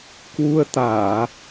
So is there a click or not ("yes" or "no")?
no